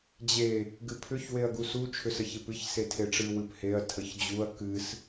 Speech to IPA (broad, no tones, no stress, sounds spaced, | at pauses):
d͡ʑ e | ɡ ɨ pʰ ʏ ç w e ɐ̯ ɡ u s u t͡ʃʰ ʏ s ə ç e p ɨ ç s e tʰ e ʈ͡ʂ ɨ w ɨ p h e ɐ̯ tʰ ə ç d͡ʑ u ɐ̯ k ɨ s